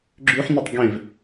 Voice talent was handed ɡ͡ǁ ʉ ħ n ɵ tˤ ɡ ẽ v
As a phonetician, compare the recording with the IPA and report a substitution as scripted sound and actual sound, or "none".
none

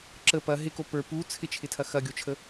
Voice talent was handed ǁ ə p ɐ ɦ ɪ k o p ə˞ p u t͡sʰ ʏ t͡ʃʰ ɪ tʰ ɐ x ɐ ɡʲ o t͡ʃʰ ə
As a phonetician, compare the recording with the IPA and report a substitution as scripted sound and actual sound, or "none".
ʏ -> ɪ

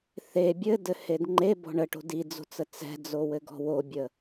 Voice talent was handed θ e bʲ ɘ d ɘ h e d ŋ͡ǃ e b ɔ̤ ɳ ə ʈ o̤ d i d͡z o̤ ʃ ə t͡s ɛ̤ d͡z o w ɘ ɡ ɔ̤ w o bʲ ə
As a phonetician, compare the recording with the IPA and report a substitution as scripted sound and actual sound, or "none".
ʃ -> t͡s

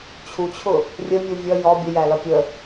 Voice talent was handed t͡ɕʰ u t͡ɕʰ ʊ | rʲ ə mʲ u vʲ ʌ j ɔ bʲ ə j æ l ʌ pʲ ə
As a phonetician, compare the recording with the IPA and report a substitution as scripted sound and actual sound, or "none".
none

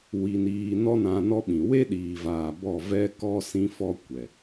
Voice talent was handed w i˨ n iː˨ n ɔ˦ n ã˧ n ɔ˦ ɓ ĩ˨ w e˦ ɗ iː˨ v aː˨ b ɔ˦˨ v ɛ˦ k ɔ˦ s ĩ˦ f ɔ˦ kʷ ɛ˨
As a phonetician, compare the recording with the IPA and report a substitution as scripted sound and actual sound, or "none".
none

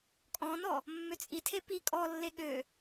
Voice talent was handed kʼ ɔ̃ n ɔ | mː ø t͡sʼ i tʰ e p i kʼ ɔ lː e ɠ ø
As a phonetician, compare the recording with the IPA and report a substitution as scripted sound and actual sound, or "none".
none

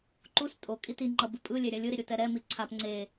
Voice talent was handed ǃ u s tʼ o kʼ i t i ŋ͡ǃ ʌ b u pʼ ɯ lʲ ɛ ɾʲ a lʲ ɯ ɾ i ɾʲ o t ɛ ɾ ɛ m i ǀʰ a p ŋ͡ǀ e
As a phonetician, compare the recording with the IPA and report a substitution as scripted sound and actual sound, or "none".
none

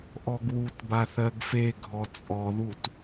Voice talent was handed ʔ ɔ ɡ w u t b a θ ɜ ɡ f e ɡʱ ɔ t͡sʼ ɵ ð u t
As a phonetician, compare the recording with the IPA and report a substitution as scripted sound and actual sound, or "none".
ɵ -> ɔ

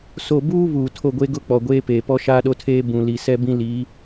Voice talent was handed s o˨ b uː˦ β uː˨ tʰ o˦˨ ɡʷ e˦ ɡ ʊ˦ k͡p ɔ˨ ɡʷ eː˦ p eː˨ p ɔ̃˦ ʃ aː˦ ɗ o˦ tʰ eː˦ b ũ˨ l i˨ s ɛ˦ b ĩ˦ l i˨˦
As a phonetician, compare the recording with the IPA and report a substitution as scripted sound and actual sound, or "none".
ɔ̃˦ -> ɔ˦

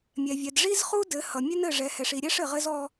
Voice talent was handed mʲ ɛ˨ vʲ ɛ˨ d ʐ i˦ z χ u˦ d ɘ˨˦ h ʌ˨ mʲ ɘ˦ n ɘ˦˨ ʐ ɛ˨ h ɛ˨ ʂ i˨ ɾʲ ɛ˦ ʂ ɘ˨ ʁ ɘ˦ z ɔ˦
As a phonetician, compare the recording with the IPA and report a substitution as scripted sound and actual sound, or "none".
none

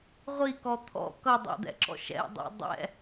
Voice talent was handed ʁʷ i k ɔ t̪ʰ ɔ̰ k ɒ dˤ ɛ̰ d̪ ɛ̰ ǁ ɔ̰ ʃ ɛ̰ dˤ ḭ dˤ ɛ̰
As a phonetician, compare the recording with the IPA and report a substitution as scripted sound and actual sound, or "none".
ɒ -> ʌ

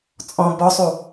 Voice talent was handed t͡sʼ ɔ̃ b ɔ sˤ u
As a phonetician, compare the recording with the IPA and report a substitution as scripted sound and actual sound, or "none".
none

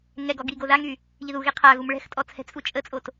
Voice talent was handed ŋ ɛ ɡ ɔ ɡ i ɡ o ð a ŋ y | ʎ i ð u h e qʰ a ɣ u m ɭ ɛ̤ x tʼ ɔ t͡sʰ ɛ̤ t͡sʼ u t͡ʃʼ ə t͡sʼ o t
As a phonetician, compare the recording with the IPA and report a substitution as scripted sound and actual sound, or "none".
h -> ɣ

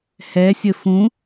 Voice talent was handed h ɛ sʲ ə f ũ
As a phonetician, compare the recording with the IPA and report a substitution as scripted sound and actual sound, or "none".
none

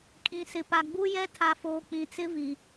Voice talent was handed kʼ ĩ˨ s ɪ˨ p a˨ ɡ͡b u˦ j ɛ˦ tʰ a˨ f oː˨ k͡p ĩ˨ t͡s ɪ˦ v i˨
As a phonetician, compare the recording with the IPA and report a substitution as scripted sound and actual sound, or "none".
none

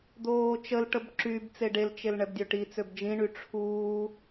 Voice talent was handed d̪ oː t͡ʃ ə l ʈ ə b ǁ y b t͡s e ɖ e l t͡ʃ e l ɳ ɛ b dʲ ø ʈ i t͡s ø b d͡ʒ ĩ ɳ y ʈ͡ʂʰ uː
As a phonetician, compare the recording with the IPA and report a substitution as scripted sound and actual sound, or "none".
none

